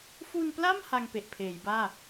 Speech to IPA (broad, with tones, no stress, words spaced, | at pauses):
fu˧npla˥˩m ha˧ŋpe˨˩ʔpʰeː˩˦jbaː˥˩